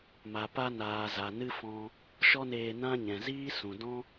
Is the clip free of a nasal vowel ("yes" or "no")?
no